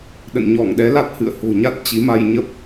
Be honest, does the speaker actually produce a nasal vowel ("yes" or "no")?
no